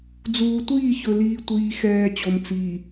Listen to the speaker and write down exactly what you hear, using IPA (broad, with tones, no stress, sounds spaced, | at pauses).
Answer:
d͡z uː˨ tʷ iː˦˨ ç ɵ˨ l iː˨ tʷ iː˨ x ɛː˨ t͡ɕ o˨ m t͡s iː˨